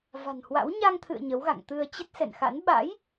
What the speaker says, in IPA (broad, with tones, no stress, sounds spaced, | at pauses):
v a̤˨˩ n h w a̰˧˥ w ɲ a˧ ŋ t̪ʰ ɨ̰˧˨ ə̯ ɲ ə˨˦ w ɣ a̰˧˨ ŋ t̪ ɨ˧ ə̯ t͡ɕ ə˦˥ t̚ s ɛ̰˧˨ n x a̰˧˥ n ɓ a̰˧˥ j